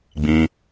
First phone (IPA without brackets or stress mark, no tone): ɡ͡b